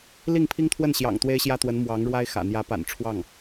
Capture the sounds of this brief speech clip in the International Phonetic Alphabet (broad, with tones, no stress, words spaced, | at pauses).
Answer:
li˥˩ŋpʰi˥ŋt̪ʰwə˥˩n ɕjɑ̰˨˩ŋt̪we˥ɪ̯ɕjä˥t̪wə˧˥n mwɑ˧˥ŋɻwa˥ɪ̯xä̰˨˩ n̪jä˧˥pa̰˨˩n ʈ͡ʂʰwɑ˥˩ŋ